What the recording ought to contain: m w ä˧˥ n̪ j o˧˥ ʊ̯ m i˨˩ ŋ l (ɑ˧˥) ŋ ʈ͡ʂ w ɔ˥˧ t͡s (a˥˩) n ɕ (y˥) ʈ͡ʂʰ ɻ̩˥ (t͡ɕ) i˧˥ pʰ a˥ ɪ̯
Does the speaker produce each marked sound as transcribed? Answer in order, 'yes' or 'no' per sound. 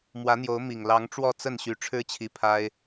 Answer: yes, no, no, no

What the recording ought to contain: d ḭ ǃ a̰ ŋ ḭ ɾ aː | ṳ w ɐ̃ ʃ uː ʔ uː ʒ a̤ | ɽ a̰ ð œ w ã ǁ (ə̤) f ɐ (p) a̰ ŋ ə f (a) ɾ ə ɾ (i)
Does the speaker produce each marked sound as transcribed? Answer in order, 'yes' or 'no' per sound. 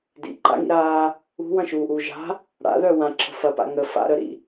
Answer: yes, yes, no, no

